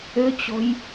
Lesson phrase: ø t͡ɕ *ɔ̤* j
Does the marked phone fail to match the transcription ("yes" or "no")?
no